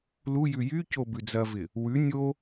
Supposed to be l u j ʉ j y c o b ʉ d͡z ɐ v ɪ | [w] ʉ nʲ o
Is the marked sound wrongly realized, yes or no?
no